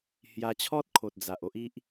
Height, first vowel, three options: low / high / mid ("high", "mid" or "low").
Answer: low